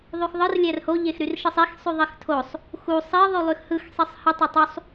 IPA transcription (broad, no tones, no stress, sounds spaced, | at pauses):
ðˤ y x ðˤ ɯ r lʲ æ r h o ʎ e x ɾ y r ʃ ɯ sˤ i x sˤ y ðˤ i x tʰ o sˤ | x u sˤ i ðˤ y lˠ y x h ɯ x sˤ i sˤ h ɯ tˤ æ tˤ u sˤ